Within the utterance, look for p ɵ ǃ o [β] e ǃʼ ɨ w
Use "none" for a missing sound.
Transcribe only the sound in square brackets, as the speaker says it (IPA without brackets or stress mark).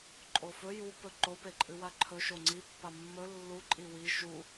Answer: p